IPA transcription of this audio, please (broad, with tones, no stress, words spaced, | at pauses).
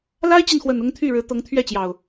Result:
la˦ɪ̯t͡ɕi˨nxwə˨˩n ʊ˦ŋt̪ʰy˥˨ɻɻ̩˨˦ t̪ɤ˨˦ŋt̪ʰɥɛ˥˨t͡ɕjɑ˨˩ʊ̯